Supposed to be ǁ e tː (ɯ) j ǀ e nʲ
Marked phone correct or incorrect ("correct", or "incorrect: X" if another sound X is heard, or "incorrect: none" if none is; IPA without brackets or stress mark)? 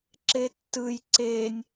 correct